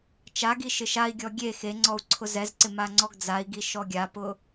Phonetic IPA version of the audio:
t͡ʃ a ɡ i ʃ ɪ ʃ a i̯ ɡʲ ɔ ɡʲ e x e ŋ͡ǀ ɔ u̯ ǀʰ ʊ z ɛ z ǀ ɪ m a ŋ͡ǀ ɔ ɡ d͡z a i̯ ɡ i ʃ ɔ ɡʲ a p ʊ

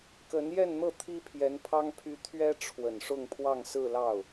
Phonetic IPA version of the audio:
k ə˧˥ n j ɛ˥˧ n n̪ ɤ˥˩ t̪ʰ i˥ pʰ j ɛ˧˥ n pʰ ɑ˥ ŋ pʰ y˥ t̪ʰ ɥ ɛ˥ ʈ͡ʂʰ w ə˨˩ n ʂ ʊ˥˧ ŋ pʰ w ɑ˥˧ ŋ s ɹ̩˥˧ l ɑ˥˩ ʊ̯

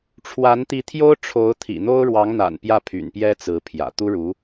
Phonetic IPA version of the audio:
ʈ͡ʂʰ w a˧˥ n t̪ i˧˥ t̪ʰ j o˥ ʊ̯ ʈ͡ʂʰ o˧˥ ʊ̯ t̪ʰ ḭ˨˩ n̪ o˥ ʊ̯ ɻ w ɑ˧˥ ŋ n̪ a̰˨˩ n p j ä˥˩ pʰ y̰˨˩ n p j ɛ˥ t͡s ɹ̩˧˥ pʰ j ä̰˨˩ t̪ u˥ ɻ u˧˥

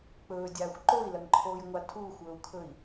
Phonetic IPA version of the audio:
k͡p ɵː dʲ aː xʷ ǃ o i̯ l ɐ ŋ ǃʰ oː j ŋʷ a tʰ uː xʷ ɵː u̯ kʰ ɵ i̯

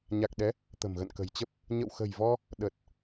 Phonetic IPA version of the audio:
ɲ a˨˩ k̚ ɗ ɛ˨˦ | t̪ ə̤˨˩ m ɣ ə̰˧˨ n k ə̤˨˩ j t͡ɕ ə˦˥ p̚ | ɲ ə̰˧˨ w x ə̤˨˩ j v ɔ˧ | ɗ ə˨˩ t̚

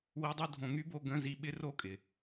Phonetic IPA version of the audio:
w i˧˥˧ dˤ u˥˧ dʱ õ˧ ŋ y˦˥ b o˧˥˧ ɡ ə̃˧˥˧ z i˧ ɓ ɪ˦˥ r o˦˥ kʼ ɪ˩

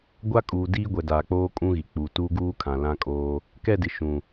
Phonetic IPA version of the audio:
ɡʷ a˦ kʼ uː˨ d iː˦ ɡʷ ɛ˨ d aː˨ k͡p oː˦ kʼ ũ˦ ɣ i˨ k͡p u˨ t uː˦ ɡ uː˦ kʰ ã˨ l ã˦ kʼ oː˦ | k ɛ˦˨ d ɪ˨ ʃ ũ˨

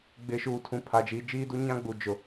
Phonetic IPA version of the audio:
ɡ͡b ɪ˨ ʃ uː˨ tʰ ũ˨ pʰ a˨ d͡ʒ iː˨ d͡ʒ iː˦ d u˦ ɲ ã˦ ɡ͡b u˨ d͡ʒ ʊ˨

